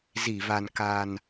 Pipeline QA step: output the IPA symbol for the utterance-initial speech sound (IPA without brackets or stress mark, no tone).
z